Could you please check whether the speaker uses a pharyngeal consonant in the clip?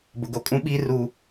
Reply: no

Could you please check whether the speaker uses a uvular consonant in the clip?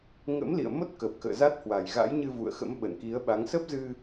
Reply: no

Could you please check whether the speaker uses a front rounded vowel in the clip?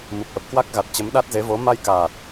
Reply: no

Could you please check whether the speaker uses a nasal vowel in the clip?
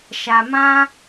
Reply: yes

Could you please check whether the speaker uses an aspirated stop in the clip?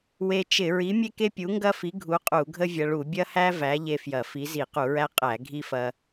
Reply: no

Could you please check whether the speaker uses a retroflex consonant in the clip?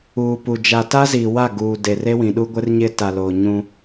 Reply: no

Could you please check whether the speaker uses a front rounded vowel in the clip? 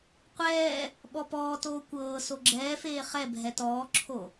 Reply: no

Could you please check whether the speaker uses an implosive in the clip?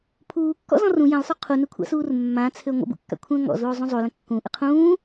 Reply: no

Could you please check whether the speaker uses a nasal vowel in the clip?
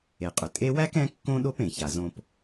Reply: yes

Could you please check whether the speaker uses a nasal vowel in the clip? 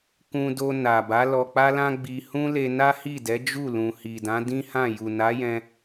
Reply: yes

